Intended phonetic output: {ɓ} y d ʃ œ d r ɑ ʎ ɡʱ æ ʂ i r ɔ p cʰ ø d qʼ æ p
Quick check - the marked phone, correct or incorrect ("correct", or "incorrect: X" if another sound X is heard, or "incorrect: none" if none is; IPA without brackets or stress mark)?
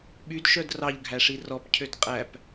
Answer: correct